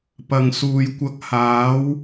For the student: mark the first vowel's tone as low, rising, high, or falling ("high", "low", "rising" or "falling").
low